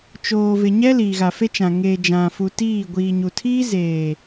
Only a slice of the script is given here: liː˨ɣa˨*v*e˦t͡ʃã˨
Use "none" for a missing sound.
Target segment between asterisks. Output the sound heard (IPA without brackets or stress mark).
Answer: f